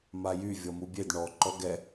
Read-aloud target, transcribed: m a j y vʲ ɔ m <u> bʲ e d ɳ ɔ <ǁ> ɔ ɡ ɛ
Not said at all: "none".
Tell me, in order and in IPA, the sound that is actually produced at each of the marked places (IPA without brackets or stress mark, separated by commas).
u, ǃ